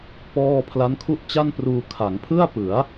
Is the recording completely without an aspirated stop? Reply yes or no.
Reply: no